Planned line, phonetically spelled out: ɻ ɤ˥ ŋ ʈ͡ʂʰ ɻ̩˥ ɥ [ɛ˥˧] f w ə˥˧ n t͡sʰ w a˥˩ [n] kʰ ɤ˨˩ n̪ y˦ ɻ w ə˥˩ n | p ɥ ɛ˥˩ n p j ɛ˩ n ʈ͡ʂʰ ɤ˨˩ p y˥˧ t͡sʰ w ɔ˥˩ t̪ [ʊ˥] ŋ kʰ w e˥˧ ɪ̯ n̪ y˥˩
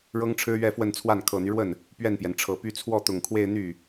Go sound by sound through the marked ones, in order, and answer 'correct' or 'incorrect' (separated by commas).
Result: correct, correct, incorrect